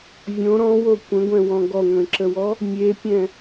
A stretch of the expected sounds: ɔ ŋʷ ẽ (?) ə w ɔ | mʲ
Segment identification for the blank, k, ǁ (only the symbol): ǁ